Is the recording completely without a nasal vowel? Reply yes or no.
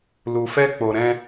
no